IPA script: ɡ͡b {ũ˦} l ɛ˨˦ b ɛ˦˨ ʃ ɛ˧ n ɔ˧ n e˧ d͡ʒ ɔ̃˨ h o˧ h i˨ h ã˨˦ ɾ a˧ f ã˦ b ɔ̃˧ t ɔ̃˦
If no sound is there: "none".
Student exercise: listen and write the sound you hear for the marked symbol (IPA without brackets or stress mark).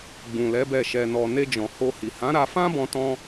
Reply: ũ˨